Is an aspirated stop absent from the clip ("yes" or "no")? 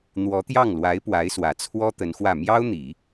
no